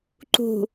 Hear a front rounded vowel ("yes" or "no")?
no